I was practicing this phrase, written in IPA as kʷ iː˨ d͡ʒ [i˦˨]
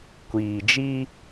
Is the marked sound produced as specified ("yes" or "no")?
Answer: no